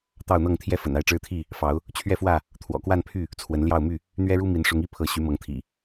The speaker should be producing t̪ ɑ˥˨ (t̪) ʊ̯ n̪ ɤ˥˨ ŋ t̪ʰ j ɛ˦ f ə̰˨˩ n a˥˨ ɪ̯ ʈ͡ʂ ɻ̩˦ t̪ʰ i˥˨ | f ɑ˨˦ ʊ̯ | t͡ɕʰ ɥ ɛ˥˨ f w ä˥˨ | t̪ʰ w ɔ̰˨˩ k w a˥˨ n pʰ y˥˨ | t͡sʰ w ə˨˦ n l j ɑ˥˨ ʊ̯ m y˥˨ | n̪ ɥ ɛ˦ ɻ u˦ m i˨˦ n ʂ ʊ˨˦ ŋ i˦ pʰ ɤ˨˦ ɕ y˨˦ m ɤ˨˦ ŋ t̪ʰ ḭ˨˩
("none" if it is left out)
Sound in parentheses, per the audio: none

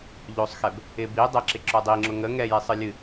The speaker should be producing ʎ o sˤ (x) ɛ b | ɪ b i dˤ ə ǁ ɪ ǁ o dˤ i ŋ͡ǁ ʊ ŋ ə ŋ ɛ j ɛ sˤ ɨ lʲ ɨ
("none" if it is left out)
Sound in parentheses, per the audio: x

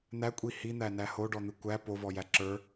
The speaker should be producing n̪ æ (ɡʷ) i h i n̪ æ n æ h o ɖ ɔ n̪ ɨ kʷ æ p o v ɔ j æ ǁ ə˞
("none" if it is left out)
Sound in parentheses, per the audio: kʷʼ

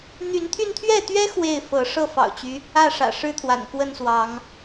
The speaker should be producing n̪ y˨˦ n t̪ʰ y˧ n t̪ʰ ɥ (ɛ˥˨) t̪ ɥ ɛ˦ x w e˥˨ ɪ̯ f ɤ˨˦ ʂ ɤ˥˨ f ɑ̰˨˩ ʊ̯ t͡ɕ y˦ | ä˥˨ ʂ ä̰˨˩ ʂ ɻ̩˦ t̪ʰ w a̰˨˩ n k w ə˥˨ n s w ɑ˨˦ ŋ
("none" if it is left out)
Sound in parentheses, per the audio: ɛ˥˨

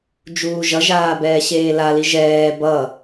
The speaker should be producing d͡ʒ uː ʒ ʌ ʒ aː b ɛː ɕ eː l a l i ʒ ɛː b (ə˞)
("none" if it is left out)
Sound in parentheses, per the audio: ʌ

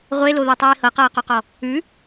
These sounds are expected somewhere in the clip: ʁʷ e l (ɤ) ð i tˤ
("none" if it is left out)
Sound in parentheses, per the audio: o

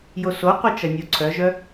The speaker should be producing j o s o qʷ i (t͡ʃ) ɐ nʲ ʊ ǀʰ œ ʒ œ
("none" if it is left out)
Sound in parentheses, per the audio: t͡ʃ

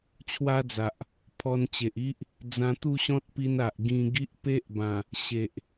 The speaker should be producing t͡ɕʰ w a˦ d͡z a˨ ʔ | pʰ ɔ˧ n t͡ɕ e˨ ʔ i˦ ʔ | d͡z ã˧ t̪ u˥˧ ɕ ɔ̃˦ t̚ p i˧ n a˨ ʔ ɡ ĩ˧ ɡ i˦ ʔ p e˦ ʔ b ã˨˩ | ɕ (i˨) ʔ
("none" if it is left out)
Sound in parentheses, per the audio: e˨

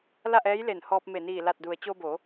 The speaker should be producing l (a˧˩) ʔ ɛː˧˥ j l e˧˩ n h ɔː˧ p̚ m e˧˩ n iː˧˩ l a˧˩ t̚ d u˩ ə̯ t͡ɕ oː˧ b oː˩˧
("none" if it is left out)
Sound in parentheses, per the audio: a˥˨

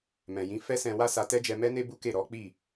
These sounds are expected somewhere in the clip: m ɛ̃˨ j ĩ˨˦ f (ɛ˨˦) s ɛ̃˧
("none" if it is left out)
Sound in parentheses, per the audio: ɛ˦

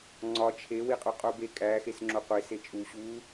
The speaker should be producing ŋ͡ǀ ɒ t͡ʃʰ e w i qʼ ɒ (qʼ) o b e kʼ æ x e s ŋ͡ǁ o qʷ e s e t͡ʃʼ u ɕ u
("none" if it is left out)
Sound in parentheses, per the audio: qʼ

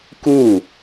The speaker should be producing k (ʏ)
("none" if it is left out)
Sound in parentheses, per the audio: u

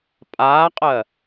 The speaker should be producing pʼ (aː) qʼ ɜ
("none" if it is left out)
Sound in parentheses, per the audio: aː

